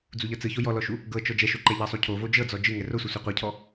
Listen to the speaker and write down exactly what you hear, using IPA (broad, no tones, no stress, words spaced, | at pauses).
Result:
d͡zuʎɤt͡sɯço jɔlɔʃu | ɡɤt͡ʃɔ d͡ʒɛʃoǃɛ ʎɤsˤucʰo vod͡ʒɤd͡zɔ d͡ʒɯ ŋɛrosʷɛ sʷɛqʷɛcʰɔ